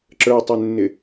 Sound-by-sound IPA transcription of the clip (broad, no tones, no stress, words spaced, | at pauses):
ǁə˞tˤɪnːɪ